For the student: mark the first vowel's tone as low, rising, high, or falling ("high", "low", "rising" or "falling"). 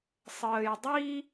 low